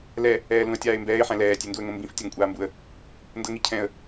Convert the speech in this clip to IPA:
l ɛ | ɛː l ũ ə̯ tʲ aː ɪ̯ m b ɛː ɪ̯ ħ ɛ̃ l ɛː tʲ e n d u ə̯ ŋ õ m b ĩ f tʲ a ŋ kʷʼ aː m b u ə̯ | n d ɤ ŋ i cʰ ɛ̃ ə̯

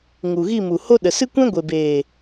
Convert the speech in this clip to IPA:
ŋ u˨ ɣ i˦˨ m u˨ h o˦ ɗ ə˨ s ɨ˦ kʷ ɛ̃˦ ɡʷ e˨ b eː˨

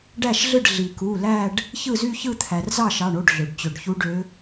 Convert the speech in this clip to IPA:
ɖ æ˥˩ ʃ ɮ ɯ˥˩ ɖ ɮ i˩ k u˩˧˩ l æ˥˧ ɖ | ç ɯ˥˩ z y˥˧ ç ɯ˥˧ t̪ʰ æ˩ r z ɑ˥˩ ʃ ɑ˩˧˩ ɳ o˩˧˩ ɖ ɮ ø˩ ɖ t͡ɕ ø˩ ɖ ç u˧˥ ɖ ø˧˥

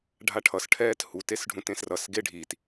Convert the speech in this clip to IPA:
ɖʱ a ʈʰ ʌ s ʈʰ ɛː t h u t e s ɖʱ ũ t ẽ s r ʌ s ɡ e ɖʱ i t

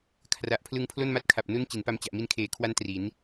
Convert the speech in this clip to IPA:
kʰ r a˨˩ ʔ pʰ l ɯ˧ ŋ pʰ l o˥˩ n m a˦˥ t̚ kʰ a˨˩ p̚ n u˥˩ n t͡ɕ i˩˦ n p a˧ m t͡ɕ a˨˩ ʔ m i˧ n kʰ eː˨˩ kʰ w a˦˥ n t r i˩˦ n

